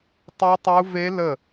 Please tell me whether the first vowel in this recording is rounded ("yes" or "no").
yes